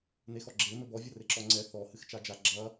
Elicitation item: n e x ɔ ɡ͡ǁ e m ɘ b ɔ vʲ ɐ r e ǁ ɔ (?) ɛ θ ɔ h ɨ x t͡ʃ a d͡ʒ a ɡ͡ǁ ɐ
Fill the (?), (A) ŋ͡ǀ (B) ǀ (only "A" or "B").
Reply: A